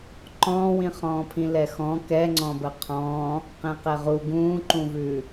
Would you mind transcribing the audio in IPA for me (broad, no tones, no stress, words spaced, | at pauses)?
ǃɔ̃ːwĩχɔ̃ːpʰĩ lɛxɔ̃ kɛŋ͡ǀɔ̃bə qʰɔ̃ | qẽqɛʁu ɡũːǃũvʉ